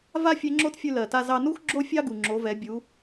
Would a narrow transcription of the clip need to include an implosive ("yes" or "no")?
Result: no